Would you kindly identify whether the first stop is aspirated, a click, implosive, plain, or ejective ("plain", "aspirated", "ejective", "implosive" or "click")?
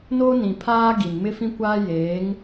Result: aspirated